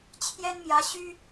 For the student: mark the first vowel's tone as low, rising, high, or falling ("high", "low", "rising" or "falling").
high